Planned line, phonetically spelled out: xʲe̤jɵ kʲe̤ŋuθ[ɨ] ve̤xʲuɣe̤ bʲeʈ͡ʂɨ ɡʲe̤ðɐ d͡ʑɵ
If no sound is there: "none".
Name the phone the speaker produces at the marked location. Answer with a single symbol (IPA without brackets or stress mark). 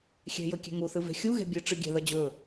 ɨ